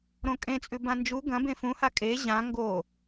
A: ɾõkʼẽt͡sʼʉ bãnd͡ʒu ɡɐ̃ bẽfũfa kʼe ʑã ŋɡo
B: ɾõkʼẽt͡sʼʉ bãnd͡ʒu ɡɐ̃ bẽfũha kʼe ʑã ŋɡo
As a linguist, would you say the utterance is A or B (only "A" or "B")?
B